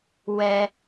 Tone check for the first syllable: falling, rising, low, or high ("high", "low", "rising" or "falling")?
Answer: high